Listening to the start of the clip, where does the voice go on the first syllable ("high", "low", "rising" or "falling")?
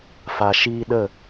low